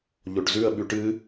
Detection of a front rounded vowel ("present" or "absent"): absent